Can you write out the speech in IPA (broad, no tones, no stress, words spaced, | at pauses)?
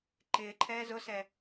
ǃɪːǃʰɛː zʊsɛ